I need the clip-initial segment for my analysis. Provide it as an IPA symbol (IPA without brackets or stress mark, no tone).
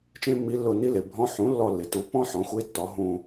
t͡ʃ